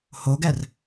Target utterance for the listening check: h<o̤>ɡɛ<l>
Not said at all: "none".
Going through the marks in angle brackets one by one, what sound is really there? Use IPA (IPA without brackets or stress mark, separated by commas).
o, r